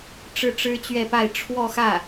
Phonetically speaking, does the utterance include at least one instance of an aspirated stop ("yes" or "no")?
yes